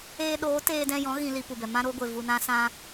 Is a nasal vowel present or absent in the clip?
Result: present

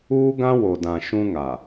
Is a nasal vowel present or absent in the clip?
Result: present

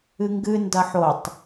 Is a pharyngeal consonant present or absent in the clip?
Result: present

